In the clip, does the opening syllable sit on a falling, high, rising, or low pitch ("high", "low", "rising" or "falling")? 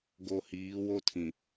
low